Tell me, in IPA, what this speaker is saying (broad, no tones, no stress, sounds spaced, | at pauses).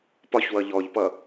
p ɒ ç w ʌ ʎ ɔ ʎ p ʌ